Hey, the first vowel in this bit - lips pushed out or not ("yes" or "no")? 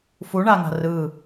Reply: yes